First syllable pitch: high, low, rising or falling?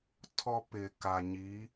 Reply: high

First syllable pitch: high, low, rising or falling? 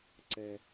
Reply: low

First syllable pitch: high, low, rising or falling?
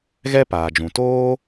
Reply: high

